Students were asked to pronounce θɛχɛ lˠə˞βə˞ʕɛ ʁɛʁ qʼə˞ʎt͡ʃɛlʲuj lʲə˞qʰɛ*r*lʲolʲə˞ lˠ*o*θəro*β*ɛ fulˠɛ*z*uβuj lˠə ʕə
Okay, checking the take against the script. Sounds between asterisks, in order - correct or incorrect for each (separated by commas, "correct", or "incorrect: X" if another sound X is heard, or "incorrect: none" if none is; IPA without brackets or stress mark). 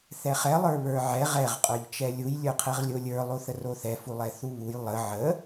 incorrect: ʁ, correct, incorrect: θ, incorrect: θ